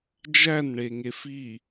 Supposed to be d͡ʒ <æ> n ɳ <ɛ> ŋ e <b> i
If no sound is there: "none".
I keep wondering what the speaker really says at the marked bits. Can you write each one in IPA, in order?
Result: æ, e, f

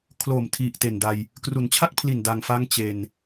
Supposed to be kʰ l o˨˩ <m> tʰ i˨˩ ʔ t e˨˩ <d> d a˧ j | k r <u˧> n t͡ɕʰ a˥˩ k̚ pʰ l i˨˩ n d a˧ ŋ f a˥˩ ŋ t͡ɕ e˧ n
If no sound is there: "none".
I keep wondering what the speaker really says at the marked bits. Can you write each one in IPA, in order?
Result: m, n, u˩˦

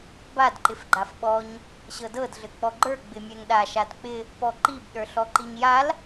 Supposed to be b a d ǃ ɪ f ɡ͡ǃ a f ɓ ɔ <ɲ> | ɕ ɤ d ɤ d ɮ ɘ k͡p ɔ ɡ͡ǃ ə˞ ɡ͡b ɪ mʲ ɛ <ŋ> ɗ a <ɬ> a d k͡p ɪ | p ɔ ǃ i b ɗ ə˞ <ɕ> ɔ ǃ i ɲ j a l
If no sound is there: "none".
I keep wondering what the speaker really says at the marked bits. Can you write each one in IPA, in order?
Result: ɲ, ŋ, ʃ, ɬ

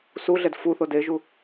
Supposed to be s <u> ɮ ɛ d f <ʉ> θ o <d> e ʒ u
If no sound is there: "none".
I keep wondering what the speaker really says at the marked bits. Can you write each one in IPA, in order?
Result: u, u, d

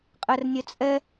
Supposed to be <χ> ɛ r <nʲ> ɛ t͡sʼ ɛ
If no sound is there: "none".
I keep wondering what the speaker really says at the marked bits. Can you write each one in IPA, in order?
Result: qʼ, nʲ

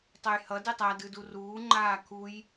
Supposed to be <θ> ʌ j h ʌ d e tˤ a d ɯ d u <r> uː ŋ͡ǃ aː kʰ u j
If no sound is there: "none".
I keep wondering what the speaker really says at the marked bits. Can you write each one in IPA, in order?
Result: tˤ, r

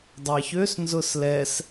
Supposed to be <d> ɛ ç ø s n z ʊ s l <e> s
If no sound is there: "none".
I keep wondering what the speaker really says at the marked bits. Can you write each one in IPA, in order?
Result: dˤ, ɛ

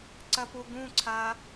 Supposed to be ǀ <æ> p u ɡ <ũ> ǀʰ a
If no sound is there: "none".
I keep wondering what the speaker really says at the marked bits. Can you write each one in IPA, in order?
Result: ɐ, ũ

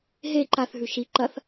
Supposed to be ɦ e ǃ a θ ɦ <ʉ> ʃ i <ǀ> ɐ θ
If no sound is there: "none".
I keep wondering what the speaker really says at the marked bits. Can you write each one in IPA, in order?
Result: ʉ, ǃ

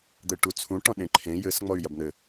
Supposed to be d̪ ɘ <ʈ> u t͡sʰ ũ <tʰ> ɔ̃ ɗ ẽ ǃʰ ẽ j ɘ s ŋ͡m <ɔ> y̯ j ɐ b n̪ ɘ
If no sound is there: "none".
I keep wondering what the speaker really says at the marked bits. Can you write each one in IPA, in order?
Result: ʈ, ʈ, ɔ

